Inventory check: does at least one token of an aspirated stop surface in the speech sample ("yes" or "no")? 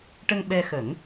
no